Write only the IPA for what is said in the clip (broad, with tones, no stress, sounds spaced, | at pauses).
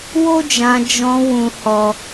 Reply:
w o˦ d͡ʒ ã˧ d͡ʒ ɔ̃˧ w ũ˦ h ɔ˦